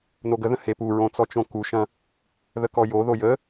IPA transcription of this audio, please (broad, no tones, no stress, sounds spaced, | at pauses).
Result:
n o ɡ ə ð ə̃ h e p u ɹ õ t͡s ɔ t͡ʃ õ k u ʃ ɐ̃ | ð ə k ɔ j o ð o j ə